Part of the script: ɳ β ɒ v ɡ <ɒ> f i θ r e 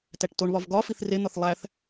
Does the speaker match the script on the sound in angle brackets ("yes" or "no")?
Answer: yes